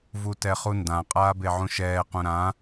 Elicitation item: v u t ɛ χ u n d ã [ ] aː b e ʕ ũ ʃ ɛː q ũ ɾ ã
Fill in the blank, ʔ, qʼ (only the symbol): qʼ